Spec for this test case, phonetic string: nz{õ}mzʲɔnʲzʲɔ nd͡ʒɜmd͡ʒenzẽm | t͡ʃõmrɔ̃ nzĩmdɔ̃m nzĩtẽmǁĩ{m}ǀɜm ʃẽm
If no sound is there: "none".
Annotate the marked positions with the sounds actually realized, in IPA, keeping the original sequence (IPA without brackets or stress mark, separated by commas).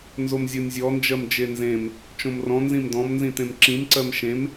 o, m